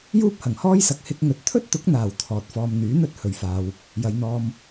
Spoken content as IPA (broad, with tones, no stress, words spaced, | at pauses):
juː˥p̚hɐ˨˩ŋhɔː˥jsɐ˨˥k̚ hɪ˧k̚ŋɵ˨t̚ t̪ʰɵ˥t̚t̪ʊ˨˥k̚n̪aː˨˩w t̪ʰɔː˨t̚fɔː˧m n̪yː˨˥n̪ɵ˥t̚ hɵ˨ɥfaː˧w | jɐ˨˧jn̪ɔː˧m